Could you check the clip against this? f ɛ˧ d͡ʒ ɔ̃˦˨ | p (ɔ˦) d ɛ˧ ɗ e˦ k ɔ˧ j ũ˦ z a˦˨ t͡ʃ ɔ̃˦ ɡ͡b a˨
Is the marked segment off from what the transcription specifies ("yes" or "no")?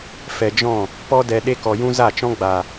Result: no